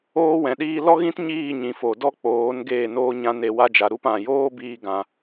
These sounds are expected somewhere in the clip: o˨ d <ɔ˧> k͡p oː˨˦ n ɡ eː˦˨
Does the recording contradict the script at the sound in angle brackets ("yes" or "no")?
yes